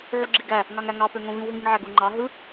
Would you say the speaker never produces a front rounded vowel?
no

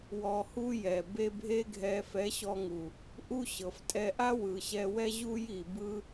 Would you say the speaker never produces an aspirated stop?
yes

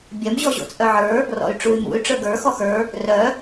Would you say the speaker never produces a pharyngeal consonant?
no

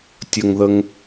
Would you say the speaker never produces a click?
yes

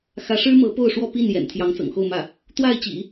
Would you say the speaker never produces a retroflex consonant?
no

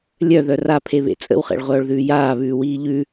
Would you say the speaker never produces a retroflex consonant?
no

